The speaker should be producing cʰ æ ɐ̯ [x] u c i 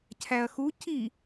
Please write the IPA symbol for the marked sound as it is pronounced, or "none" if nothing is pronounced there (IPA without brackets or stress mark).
x